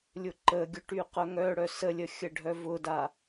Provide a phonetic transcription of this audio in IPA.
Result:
lʲ ʊ ǃ ə ɡʲ ʊ ʈ y q œ ŋ œ ɽ œ s ə lʲ ə xʲ ə ɖʱ œ v ʊ d a

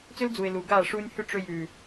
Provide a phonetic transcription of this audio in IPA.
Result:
t͡s ʏ˦ l d͡z u˨ ɪ̯ l u˨ ɡ aː˦˨ ʂ uː˧ nʲ h ʏ˦˨ ʈ͡ʂ ʏ˧ j ʉː˨

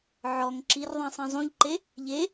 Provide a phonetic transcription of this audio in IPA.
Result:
ʕ ɔ ŋ ǁ i r ðˤ ĩ sˤ ẽ zˤ ũ ʎ ǃ e | ʎ e

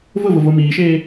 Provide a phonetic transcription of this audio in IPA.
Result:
v ʊ v ʊ v o m iː ʃ eː

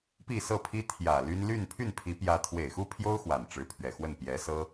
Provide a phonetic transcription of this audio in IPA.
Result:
p i˥˧ s ɤ˥˩ pʰ i˥ t̪ʰ j ä˨˩ l y˥ n l y˥˧ n pʰ y˥˩ n pʰ i˧˥ p j ä˧˥ t̪ʰ w e˨˩ ɪ̯ x u˥ pʰ j o˥ ʊ̯ x w a˨˩ n ʈ͡ʂ ɻ̩˧˥ pʰ ɥ ɛ˨˩ x w ə˥˩ n p j ɛ˧˥ s ɤ˥

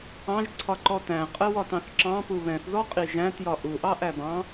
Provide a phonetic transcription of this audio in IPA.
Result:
ɑ̃ ʒ ǀʰ ɒ ǃ ɔ t æ̃ qʼ ɜ w ɒ t ɑ̃ θ ǁ ɑ̃ p u β ɛ̃ θ ð ɔ qʼ i ʒ æ̃ t j ɒ ʔ u ʔ ɑ ʔ æ b ɑ̃

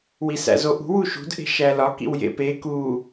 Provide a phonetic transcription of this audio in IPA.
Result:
w i s æ̰ z o ʔ ṳ w u ʃ ṳ d ʔ e̤ ʃ æ l ɒ k ḭ w j ḛ p e k u

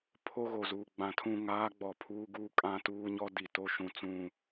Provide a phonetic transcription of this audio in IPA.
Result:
pʰ o˦ ɣ o˨ z uː˨ ɡ͡b ã˨ tʰ ũ˦˨ ŋ aː˦ ɡ͡b ɔ˨ pʰ uː˦ ɡ uː˦ kʼ ã˦ t uː˦ ɲ ɔ˦ d i˨ t o˦ ʃ ũ˨ t͡s ũ˦˨

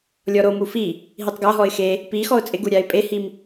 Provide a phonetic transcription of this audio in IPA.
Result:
lʲ ɔ ɾ o m u f i | ɦ i tˤ ɡ a ɦ ɔ ɪ̯ x e | p i x ɔ ʊ̯ t͡sʼ ɪ ɡ u ɾʲ a ɪ̯ pʼ e h i m

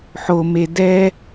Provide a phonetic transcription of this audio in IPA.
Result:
ħ o m e d ɛ

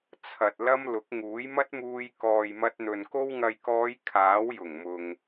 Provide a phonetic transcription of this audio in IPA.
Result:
t͡sʰ ɐ˨ t̚ l ɐ˧ m l ʊ˨˥ k̚ ŋ uː˨˥ j m ɐ˥ t̚ m uː˧ j k ɔː˨ j m ɐ˧ t̚ n̪ ɵ˨ n k o˧ w ŋ ɐ˨ j k ɔː˨˧ j kʰ aː˨˥ w j ʊ˨˩ ŋ m ʊ˨ ŋ

